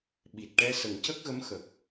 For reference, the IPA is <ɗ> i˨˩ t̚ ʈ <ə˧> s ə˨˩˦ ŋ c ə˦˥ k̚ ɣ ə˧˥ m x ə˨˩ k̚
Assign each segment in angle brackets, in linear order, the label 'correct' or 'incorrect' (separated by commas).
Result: incorrect, incorrect